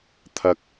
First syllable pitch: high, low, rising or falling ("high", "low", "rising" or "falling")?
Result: low